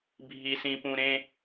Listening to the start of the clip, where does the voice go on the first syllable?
high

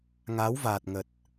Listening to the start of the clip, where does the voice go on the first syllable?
rising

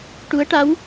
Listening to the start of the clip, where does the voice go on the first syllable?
rising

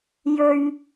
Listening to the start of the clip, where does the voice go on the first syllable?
low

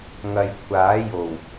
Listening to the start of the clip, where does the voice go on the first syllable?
low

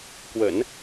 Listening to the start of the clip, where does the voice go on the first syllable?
low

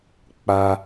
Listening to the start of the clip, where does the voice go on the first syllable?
high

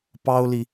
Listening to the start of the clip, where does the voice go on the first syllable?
high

